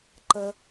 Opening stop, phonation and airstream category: click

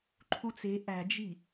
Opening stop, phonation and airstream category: click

